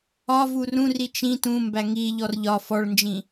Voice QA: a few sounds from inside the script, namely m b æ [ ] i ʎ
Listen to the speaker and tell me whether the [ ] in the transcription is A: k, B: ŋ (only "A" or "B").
B